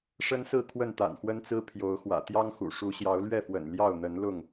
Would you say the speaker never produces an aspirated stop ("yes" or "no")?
no